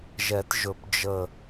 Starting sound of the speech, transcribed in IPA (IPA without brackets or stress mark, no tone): ʒ